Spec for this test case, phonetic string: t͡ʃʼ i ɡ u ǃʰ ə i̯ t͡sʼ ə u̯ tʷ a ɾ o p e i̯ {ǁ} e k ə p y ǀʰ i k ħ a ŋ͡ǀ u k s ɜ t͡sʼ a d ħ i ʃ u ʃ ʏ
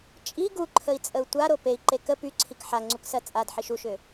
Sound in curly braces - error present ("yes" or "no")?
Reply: yes